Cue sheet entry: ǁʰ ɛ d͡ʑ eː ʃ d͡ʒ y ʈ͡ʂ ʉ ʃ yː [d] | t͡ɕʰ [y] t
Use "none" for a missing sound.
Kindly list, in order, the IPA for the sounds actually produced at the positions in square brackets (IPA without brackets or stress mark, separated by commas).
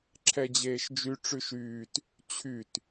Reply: t, y